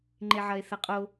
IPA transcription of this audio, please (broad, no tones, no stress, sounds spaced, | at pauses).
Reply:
ŋ͡ǃ e ʕ ɐ e̯ θ ɐ qʼ o